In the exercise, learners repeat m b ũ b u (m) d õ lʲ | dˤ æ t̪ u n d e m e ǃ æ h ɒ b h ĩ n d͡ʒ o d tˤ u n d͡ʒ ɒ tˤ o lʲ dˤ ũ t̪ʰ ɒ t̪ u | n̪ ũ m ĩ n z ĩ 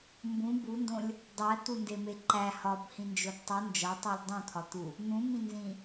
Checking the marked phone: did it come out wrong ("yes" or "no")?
yes